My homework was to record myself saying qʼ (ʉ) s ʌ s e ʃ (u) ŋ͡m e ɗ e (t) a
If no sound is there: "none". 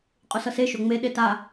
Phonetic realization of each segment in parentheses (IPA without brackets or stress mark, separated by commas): u, o, t